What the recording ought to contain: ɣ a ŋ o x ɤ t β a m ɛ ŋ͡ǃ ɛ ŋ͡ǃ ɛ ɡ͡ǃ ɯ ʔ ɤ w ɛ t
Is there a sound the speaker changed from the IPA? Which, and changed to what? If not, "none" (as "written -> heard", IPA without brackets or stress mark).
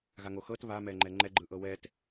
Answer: none